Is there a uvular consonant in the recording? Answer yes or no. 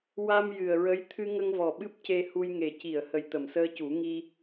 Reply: no